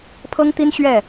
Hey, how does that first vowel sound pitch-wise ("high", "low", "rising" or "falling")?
high